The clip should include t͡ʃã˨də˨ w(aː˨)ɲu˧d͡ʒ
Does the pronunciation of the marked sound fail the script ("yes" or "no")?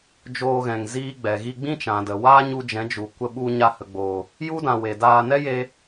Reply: yes